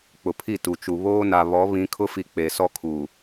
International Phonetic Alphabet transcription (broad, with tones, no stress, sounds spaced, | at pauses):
k͡p ʊ˨ pʰ i˦˨ t u˨ t͡ʃ u˨ β oː˦ n a˨ β ɔ˨˦ β ĩ˨˦ kʰ ʊ˦ f i˨ k͡p e˨ s ɔ˦ kʰ u˨